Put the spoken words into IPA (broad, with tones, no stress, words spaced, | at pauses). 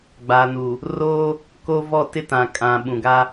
ɡ͡ba˨nu˨ | roː˦ | ko˦ vɔ˦˨tɪ˦tã˨kʼã˨ ɓũ˨ɡa˦